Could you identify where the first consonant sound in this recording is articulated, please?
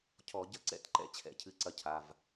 palatal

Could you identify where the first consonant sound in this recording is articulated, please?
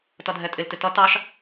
alveolar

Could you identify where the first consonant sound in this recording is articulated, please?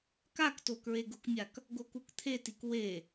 velar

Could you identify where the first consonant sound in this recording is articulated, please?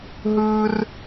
glottal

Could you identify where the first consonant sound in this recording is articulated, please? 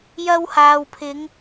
palatal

